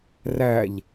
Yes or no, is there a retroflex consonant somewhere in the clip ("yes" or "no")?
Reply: no